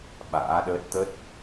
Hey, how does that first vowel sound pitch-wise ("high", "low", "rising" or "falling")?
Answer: rising